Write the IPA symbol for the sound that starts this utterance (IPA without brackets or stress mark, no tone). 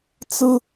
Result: t͡s